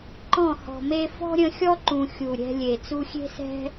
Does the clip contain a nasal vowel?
yes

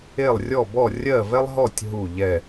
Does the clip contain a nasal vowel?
no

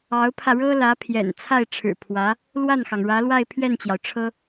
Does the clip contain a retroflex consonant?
yes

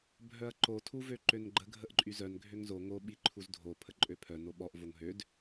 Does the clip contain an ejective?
yes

